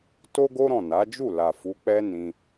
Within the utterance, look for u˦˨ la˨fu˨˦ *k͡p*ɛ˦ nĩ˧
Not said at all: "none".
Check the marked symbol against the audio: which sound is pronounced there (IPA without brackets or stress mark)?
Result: k͡p